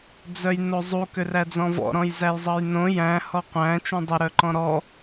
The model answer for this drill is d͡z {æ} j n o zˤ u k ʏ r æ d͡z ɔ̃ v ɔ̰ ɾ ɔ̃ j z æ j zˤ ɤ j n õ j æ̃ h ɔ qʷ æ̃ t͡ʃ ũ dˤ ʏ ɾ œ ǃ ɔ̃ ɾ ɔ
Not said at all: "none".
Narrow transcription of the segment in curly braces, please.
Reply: œ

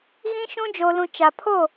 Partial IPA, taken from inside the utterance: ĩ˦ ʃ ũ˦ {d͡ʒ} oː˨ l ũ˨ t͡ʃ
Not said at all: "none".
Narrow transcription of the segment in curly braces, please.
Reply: d͡ʒ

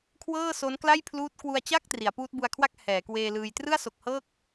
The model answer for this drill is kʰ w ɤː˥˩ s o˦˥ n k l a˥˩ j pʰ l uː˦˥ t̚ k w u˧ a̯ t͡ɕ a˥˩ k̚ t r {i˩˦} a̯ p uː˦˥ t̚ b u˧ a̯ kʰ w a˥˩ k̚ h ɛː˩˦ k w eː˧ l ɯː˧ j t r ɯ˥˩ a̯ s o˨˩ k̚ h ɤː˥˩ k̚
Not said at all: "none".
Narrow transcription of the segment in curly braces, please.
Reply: i˩˦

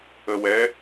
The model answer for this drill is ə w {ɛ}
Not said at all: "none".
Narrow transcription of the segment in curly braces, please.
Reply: ɛ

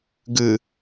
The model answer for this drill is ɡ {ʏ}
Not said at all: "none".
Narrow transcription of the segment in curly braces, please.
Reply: ɨ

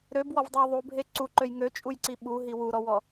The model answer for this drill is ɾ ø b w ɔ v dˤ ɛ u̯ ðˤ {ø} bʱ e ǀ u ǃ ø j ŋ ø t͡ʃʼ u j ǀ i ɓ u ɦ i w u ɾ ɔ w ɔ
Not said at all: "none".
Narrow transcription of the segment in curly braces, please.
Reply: u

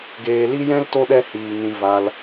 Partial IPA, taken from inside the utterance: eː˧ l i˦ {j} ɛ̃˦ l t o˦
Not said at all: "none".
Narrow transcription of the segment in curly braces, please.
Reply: j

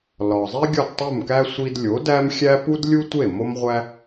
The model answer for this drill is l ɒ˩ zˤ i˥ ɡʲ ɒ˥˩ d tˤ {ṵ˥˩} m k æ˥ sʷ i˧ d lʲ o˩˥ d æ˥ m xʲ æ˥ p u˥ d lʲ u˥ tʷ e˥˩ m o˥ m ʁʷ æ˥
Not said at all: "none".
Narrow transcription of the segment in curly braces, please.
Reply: u˥˩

